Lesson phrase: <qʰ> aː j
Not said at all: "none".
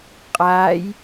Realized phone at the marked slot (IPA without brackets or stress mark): qʼ